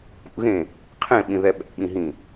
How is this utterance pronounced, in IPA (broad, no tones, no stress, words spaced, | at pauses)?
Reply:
pṵɣẽ | qʰẽɓĩðɛ ɓɛ̰ɓĩɦĩ